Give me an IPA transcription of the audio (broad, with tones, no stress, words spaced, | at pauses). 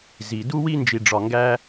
zi˨du˦ wi˦nd͡ʒi˨ɖ͡ʐɒ˨ŋɡæ˦